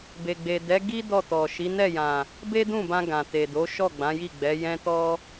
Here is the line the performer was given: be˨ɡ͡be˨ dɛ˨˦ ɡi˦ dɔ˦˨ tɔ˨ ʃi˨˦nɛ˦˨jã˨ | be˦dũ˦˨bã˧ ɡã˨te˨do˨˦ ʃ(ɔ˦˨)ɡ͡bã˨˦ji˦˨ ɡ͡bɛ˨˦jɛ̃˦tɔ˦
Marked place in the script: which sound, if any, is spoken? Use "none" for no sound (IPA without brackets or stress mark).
ɔ˦˨